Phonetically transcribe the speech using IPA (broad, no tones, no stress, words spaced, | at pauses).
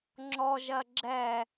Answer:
ŋ͡ǁɔʒɜ ɡ͡ǁɛ